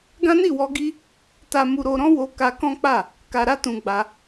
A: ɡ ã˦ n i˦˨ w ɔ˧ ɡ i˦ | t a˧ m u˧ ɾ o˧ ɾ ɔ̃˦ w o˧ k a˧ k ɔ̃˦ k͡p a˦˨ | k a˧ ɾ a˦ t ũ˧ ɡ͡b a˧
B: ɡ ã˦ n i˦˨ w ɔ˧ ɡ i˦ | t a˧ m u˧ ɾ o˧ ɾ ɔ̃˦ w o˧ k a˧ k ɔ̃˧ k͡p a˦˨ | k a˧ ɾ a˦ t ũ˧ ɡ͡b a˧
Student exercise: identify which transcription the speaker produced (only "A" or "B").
A